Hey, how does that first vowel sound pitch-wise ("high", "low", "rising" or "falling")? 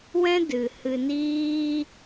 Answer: high